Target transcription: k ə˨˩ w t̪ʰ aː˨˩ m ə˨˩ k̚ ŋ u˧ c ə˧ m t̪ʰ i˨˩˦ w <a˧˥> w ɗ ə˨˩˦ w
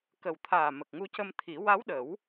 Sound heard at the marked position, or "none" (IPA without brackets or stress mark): a˧˥